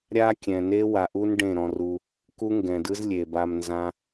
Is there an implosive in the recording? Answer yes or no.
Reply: no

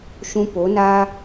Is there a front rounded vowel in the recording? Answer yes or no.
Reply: no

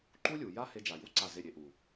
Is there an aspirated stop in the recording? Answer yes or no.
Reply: no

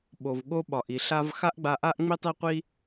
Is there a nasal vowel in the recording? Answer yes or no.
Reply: no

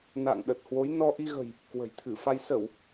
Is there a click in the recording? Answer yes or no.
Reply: no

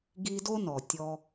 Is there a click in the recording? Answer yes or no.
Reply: no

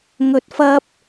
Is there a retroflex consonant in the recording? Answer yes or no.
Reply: no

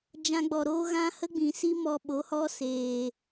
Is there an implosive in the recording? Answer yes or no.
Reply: yes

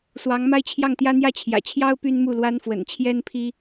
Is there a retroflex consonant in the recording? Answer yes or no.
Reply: no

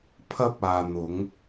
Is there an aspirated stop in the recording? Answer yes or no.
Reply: yes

